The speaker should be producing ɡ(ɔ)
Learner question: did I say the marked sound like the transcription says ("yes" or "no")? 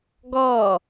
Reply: yes